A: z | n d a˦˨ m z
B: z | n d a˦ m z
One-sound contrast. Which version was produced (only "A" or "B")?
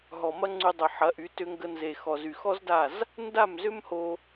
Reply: A